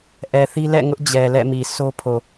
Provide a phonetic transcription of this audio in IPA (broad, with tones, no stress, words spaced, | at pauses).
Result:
ʔɛ˨θi˦ lɛ̰˦˨ŋʊ˦ʔ d͡ʑɛ˨lɛ̰˦˨mi˨ so˦pʰo˨